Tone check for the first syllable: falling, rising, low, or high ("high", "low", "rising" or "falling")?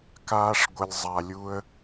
high